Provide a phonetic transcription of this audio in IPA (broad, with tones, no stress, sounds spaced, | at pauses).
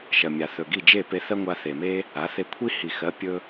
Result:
ʃ ɜ˩ mʲ a˩ θ ɵ˩ ɡ i˥˩ d͡ʒ e˥˩ p e˧ θ ɜ˥ ŋʷ a˧ θ e˩ m e˥ | a˩˥ θ e˧ kʷʰ i˥ h i˩ x ɜ˩˥ pʲ ɵ˧